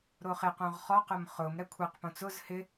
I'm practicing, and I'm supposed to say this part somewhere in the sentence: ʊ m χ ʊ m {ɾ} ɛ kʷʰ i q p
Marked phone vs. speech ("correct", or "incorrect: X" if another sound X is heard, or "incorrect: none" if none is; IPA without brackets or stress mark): correct